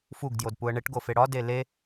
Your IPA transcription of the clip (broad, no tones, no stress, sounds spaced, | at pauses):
f u ɡ d j o d p u ə̯ ɳ e ʈ ɡ o f e ɽ ɒ d e l e